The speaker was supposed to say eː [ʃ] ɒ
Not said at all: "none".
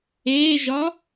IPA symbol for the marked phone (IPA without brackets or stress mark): ʒ